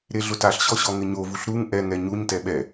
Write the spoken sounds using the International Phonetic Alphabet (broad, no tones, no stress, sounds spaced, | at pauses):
ɾ e ɮ ʊ t a ɬ ɕ ɔ ɕ ɔ ŋ ɪ ɲ o v u ɬ ɾ u ŋ ʔ ɛ ŋ ɛ ɲ u ɲ t ɛ ɓ ɛ